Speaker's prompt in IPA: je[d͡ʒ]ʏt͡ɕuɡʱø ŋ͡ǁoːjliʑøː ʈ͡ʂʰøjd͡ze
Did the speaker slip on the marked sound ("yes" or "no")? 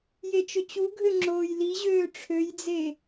yes